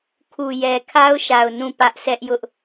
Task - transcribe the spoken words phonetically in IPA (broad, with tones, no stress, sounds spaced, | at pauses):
kʰ u˨ j ɛ˨ kʰ a˦ ʊ̯ ʃ a˨ ʊ̯ n ũ˦˨ p ä˦ ʔ sʰ ɛ˦ ʔ j ʊ˦ ʔ